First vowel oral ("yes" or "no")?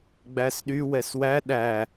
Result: yes